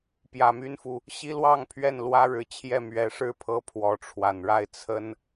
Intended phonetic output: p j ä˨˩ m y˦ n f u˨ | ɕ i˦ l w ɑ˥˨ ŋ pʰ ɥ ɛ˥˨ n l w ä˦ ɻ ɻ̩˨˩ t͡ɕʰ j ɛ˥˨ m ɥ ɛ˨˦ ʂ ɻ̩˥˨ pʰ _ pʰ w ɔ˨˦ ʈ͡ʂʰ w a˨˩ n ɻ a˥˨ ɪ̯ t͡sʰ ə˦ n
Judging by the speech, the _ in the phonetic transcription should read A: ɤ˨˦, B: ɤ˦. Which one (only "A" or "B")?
B